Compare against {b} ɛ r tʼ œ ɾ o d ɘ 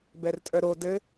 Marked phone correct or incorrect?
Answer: correct